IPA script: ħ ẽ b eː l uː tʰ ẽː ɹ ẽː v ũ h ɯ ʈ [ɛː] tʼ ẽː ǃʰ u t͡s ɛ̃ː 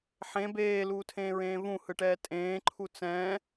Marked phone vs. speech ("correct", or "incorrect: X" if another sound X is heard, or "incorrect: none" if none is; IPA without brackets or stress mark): correct